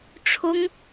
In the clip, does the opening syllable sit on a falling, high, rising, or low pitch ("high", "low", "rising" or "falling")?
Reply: high